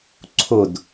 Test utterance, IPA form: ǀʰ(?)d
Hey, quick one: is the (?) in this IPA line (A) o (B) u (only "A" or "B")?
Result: A